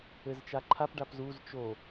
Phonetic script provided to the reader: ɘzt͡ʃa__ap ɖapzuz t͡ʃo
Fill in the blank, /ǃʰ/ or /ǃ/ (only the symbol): ǃʰ